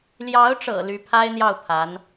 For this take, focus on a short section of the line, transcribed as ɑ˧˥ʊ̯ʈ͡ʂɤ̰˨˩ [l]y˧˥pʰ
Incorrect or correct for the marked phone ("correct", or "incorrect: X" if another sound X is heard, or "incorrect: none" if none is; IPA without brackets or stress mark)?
correct